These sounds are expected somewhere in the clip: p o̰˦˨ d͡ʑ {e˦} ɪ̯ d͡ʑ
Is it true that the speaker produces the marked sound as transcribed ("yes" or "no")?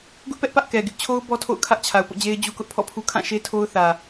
yes